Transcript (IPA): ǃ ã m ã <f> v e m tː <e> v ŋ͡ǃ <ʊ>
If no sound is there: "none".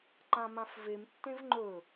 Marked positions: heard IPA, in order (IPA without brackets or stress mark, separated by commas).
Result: f, ẽ, ɵ